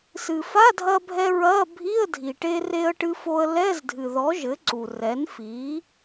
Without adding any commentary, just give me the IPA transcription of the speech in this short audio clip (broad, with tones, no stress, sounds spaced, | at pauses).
s ɨ˩ f a˧˥˧ dʱ ɐ˧ bʱ ɛ˧ ɹ ɐ˧˥˧ bʱ i˧˥˧ ə̯ dʱ i˩ ʈ e˧ r e˧ ə̯ ʈ ɨ˧ f o˧ ə̯ l ɛ˧˥˧ z dʱ ɨ˩ ð ɔ˩˥ ʒ ɘ˩˥ ǀ u˩ r ɛ˩˥ n f i˩˥